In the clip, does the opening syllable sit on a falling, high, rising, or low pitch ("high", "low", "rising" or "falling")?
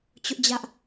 high